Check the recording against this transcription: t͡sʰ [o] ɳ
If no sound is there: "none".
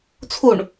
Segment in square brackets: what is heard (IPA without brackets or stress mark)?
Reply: u